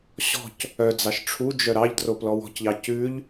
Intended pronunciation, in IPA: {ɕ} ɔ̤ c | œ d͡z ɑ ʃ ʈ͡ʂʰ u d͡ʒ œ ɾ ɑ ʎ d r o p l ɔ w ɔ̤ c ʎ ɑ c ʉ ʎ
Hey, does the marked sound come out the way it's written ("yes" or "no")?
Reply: yes